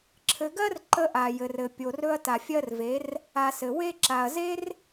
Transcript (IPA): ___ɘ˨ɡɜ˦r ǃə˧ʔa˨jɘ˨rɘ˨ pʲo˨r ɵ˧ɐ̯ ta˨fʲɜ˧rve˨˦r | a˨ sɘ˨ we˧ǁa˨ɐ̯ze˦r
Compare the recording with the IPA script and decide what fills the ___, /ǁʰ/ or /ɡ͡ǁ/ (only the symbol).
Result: ǁʰ